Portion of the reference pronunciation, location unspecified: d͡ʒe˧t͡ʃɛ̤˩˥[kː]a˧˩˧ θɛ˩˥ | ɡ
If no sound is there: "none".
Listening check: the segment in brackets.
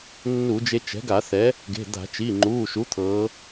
ɡ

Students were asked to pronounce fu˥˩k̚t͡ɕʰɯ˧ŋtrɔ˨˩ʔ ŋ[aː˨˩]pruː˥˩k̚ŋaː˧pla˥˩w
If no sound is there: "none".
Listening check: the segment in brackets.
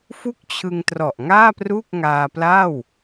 aː˥˩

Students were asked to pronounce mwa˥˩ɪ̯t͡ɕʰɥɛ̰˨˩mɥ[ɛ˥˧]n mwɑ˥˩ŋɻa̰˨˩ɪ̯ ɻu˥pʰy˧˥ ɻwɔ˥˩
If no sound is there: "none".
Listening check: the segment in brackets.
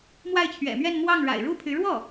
ɛ˥˧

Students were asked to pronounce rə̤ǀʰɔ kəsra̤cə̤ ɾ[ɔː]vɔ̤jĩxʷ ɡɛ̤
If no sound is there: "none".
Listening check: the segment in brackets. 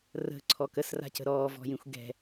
ɔː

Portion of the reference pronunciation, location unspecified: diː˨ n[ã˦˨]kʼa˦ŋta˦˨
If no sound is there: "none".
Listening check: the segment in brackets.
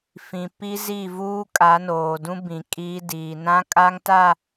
ã˦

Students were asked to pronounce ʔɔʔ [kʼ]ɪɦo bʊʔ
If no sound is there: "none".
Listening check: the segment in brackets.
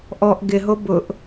ɡ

